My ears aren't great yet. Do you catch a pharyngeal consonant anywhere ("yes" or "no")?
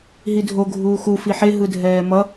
yes